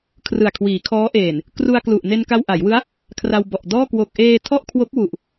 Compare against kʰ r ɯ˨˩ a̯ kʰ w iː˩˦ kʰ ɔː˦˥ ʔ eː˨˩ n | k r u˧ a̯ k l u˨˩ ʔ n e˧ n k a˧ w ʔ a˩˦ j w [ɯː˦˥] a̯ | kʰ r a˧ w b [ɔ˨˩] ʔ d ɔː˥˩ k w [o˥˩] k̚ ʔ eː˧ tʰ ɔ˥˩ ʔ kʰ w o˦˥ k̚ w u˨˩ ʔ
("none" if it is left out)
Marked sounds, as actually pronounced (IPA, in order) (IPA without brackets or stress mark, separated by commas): ɯ˦˥, ɔ˨˩, o˨˩